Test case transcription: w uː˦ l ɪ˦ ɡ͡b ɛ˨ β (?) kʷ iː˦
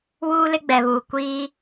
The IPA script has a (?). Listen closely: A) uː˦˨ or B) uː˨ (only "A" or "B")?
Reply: B